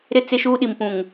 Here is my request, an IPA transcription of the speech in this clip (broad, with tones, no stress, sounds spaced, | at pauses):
ɾ ɪ˦ t͡s ɪ˦ ʃ uː˦ ɗ i˨ m p ũ˨ ŋ